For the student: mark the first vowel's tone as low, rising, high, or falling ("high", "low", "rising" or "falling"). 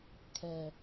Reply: low